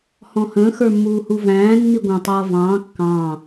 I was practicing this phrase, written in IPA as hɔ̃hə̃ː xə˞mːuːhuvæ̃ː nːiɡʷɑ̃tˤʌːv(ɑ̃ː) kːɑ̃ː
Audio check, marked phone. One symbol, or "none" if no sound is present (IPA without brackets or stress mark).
ɑ̃ː